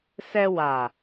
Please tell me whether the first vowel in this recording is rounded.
no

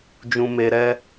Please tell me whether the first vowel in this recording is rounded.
yes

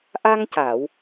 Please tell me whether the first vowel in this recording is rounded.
no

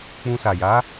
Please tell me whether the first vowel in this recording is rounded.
yes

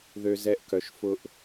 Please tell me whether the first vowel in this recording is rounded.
yes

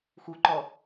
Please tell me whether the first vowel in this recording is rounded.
yes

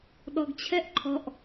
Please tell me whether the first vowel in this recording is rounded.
yes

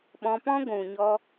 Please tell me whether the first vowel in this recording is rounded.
yes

